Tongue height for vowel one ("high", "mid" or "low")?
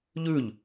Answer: high